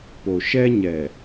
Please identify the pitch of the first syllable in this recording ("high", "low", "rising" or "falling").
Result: low